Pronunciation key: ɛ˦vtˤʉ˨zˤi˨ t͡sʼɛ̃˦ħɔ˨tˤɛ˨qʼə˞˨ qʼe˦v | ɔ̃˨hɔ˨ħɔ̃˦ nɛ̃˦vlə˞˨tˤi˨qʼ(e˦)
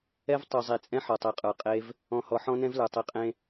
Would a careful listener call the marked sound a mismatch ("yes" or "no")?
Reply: yes